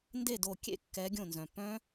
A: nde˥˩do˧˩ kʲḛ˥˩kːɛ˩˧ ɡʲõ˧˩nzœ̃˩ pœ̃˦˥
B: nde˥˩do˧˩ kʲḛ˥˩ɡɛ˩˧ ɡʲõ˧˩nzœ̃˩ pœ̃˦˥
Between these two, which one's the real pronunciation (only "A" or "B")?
A